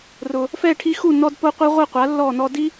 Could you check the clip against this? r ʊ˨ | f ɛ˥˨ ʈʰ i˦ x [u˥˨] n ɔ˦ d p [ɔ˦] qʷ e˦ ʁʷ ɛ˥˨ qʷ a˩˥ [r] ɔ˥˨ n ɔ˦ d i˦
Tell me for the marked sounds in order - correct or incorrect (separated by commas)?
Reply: correct, incorrect, incorrect